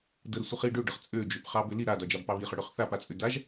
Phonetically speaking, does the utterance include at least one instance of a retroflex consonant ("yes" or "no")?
yes